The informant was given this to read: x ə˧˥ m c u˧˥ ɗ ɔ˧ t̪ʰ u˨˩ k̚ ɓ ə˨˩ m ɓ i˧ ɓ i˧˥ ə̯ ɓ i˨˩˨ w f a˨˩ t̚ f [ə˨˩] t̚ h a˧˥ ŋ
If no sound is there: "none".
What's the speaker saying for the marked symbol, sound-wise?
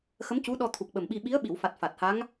a˨˩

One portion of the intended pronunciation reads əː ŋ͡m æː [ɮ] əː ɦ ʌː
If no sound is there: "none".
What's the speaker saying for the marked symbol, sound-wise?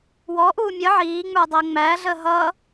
ɮ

